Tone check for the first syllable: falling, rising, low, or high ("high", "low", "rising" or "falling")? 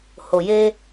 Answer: low